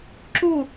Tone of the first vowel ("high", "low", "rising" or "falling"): falling